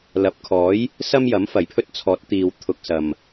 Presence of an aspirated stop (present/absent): present